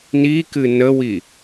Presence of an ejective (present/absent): absent